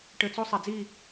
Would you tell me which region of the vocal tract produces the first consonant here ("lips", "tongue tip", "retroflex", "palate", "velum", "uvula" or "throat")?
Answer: retroflex